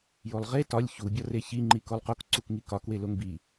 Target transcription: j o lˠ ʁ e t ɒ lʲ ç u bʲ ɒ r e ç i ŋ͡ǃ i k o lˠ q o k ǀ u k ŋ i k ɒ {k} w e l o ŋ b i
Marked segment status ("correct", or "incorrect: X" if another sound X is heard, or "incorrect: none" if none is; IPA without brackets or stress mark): correct